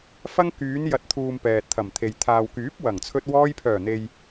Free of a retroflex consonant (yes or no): yes